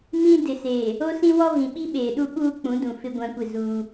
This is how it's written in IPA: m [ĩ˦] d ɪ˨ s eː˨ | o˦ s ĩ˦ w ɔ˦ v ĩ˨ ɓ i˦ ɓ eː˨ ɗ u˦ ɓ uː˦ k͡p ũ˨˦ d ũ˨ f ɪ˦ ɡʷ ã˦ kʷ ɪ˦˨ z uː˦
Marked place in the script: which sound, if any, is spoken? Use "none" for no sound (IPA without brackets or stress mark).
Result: ĩ˦